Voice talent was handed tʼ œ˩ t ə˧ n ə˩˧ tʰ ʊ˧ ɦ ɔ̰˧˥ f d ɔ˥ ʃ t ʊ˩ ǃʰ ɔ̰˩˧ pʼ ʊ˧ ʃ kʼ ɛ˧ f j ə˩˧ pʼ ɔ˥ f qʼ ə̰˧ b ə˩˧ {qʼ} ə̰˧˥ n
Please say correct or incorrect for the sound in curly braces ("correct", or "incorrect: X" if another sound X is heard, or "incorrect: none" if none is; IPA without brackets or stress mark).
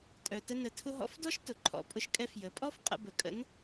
incorrect: kʼ